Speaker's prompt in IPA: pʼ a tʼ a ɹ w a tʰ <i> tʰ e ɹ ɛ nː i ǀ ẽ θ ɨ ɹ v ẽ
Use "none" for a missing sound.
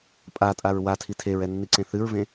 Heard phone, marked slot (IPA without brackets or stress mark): i